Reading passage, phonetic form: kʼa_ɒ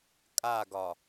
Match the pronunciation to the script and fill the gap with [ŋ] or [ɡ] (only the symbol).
ɡ